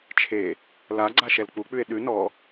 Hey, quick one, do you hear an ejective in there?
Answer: no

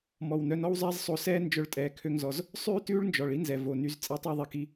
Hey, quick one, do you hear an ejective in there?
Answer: yes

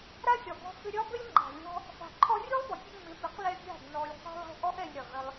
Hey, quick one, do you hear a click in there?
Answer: yes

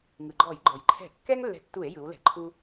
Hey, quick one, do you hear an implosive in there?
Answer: no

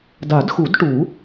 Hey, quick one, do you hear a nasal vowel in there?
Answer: no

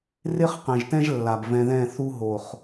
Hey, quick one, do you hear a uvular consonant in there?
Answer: yes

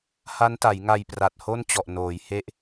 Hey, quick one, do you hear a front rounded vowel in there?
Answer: no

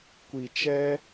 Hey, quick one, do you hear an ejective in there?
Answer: no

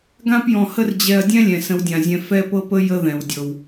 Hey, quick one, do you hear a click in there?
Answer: no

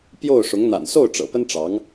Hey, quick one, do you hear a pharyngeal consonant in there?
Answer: no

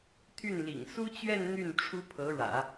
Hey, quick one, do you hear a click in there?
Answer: no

